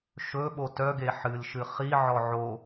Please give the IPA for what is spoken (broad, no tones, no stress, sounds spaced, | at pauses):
ʃ ɵ ɓ o t œ ɡ e ħ ɨ l ʃ ɨ χ i ʕ ɔ ʕ o